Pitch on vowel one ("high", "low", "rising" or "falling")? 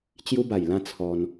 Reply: high